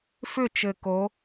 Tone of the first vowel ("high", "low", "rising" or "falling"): falling